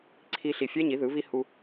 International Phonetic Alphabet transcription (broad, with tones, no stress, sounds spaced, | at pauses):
ǀʰ i˦ ɬ i˧ fʲ ɛ˦ ɲ i˨˦ ð ɯ˨˦ β i˦ h u˦